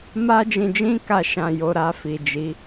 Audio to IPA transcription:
m a˧ d͡ʒ ĩ˨ d͡ʒ ĩ˧ k a˨ ʃ ã˨ j o˨ ɾ a˧ f i˨ d͡ʒ i˨˦

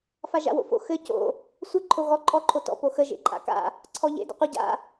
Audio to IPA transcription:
f a ʒ a̰ w o̰ f o̰ x ɘ c o̰ | sʷ ə ǃʰ o ɣ ɔ ǃʼ ɔ ǃʰ o t ɔ̰ p o x ə ʒ ḛ ǃʼ a̰ k a̰ | ǀʰ ɔ ʎ ḛ d ə̰ qʷ ə ɟ a̰

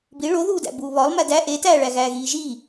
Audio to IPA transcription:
b i ɭ o ð uː d æ̰ b uː β ɒ lˠ m æ d æ ʔ e t æː ɭ æ ɣ æː ɣ iː ʒ iː

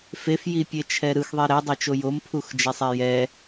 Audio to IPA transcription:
f e f j i pʲ e t͡ʃʰ ɛ ɾ ɯ x ðˤ e ɾ ɛ dˤ e t͡ʃ o j o m pʰ u x d͡ʒ ɛ sˤ ɛ j ɛ

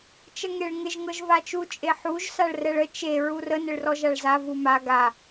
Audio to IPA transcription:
t͡ʃ ə ŋ e ɭ ŋ ɪ ʒ ŋ ɤ ʒ v a t͡ʃ u t͡ʃʼ e ħ u ʒ s a ɭ r ɛ ɭ ə t͡ʃ e ɹ u r ə n ɪ ɭ r ɔ ʒ a ɭ z a v u m a ɡ a

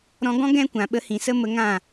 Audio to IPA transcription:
ɾ ɔ̃˧ ɡ ɔ̃˦ ɡ ɛ̃˦ kʷ ã˨ ɓ ə˧ h ĩ˨ s ə˦ m ə˧ ŋ ã˦˨

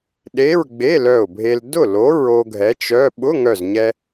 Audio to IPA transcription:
ɗ e˧˥˧ ɹ ɡ͡b e˧˥˧ l œ˧˩ ʊ̯ bʱ e˧ l d ʊ˥˩ l o˨˥ ɹ o˧ ɡʱ ɛ˨˥ t͡ʃ œ˧˥˧ ɓ ʊ˧˥˧ ŋ œ˧˩ z ɲ ɛ˧

